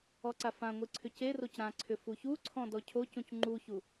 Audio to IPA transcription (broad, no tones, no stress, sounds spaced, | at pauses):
ɔ ǀ a f ã ŋʷ i ǀʰ ʏ c e r o c ɾ ã ǀʰ ʏ f u ç u ǀʰ ɔ̃ d ɔ cʰ o c ũ c ŋ͡ǃ u ç u